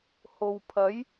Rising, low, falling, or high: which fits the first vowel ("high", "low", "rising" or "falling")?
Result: low